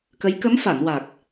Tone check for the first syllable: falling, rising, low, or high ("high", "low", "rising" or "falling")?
rising